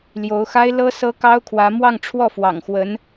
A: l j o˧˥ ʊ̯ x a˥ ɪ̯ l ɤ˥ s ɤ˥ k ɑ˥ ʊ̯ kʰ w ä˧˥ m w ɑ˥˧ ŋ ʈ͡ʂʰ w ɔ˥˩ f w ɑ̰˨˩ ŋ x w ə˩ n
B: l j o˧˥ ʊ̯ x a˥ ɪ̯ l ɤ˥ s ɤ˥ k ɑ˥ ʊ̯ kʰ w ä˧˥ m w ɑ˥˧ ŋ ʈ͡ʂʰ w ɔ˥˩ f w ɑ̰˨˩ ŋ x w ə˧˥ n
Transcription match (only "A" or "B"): B